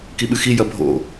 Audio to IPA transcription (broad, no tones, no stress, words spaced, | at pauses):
kiɓɨxi jɐbʱo̰